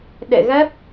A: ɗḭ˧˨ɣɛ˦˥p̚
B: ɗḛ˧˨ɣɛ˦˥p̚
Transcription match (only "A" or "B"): B